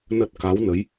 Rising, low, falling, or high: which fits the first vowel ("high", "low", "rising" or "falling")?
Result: low